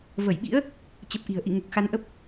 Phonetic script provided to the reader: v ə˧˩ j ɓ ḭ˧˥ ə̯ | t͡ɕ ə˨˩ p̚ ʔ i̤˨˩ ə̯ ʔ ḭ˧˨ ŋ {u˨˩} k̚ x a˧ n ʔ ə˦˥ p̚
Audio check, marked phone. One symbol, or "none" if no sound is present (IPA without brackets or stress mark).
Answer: u˨˩